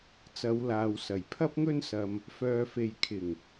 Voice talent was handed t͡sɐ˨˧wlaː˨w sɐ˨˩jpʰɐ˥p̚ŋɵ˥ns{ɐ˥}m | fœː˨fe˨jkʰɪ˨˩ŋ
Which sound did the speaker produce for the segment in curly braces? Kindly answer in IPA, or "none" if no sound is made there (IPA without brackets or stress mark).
ɐ˧